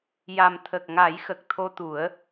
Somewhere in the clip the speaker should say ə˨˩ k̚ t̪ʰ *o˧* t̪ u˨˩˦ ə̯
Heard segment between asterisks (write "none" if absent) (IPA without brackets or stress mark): o˧